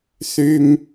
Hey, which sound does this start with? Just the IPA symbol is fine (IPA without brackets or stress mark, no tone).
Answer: θ